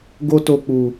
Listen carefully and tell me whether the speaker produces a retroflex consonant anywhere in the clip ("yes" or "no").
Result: no